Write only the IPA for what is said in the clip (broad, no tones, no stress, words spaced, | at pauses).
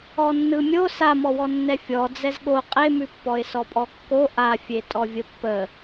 ɔnːɯmʲo samɔwɔ nːɛfʲɔ d͡zɛzɠo qʼemʉpːɔɪ̯ sɔpʼɔkːo ʔafʲe tʼɔvʲəpːə